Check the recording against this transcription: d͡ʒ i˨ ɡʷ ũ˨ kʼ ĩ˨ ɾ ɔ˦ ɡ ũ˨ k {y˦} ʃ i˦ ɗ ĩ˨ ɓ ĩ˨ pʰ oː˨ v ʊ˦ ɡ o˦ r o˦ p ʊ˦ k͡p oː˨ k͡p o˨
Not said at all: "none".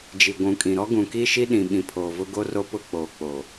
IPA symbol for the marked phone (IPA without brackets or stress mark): i˦